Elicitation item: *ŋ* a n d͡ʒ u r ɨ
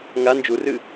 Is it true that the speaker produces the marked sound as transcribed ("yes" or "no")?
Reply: yes